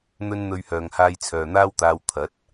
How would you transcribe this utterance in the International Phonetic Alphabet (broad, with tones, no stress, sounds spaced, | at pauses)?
n̪ ɵ˥ n n̪ ɵ˧ ɥ h œː˨ ŋ h aː˧ j t͡sʰ œː˨ n̪ aː˥ w t̪ aː˧ w t̪ʰ ɐ˨˥ t̚